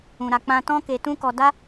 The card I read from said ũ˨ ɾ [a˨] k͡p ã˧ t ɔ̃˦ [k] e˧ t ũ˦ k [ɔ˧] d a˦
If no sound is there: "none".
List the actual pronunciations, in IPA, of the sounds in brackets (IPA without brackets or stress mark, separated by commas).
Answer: a˨, k, ɔ˧